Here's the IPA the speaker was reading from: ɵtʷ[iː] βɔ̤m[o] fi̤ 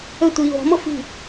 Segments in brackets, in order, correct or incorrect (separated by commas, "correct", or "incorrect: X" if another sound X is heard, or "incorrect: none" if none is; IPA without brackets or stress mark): correct, incorrect: ɤ